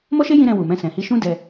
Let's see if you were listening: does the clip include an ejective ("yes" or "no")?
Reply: no